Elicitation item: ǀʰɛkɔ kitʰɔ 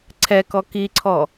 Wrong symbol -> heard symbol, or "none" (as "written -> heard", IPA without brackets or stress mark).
tʰ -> ǀʰ